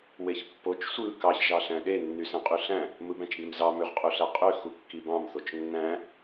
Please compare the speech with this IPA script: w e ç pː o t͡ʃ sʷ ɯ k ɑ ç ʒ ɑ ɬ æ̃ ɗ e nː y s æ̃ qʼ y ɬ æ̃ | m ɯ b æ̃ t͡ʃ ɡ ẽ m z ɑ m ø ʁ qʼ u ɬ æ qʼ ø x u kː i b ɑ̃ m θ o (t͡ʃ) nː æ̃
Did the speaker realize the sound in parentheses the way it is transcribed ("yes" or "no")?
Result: yes